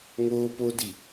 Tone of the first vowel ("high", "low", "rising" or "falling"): high